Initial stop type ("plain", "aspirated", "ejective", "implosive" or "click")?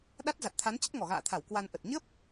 implosive